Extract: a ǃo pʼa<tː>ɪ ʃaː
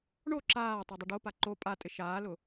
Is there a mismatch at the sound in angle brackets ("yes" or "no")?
yes